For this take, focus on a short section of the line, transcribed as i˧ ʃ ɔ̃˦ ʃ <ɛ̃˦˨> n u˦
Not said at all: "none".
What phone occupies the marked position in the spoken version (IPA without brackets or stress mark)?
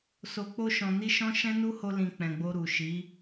ɛ̃˦